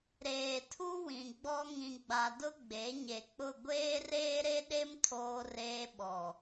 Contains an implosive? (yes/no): yes